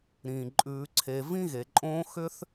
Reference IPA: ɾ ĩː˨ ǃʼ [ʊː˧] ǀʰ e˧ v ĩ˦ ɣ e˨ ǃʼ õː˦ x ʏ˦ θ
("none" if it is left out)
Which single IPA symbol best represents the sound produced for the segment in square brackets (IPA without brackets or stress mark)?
ʉː˧